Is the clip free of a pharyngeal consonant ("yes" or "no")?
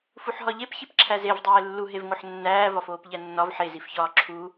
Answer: no